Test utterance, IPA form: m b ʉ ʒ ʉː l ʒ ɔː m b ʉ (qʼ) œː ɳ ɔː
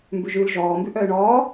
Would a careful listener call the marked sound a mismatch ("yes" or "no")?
yes